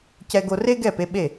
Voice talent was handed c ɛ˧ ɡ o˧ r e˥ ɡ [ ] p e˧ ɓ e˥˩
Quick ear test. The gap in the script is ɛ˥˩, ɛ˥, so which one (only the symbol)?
ɛ˥˩